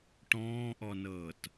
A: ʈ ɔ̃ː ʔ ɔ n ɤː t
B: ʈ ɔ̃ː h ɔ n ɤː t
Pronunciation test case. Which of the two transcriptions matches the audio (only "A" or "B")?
A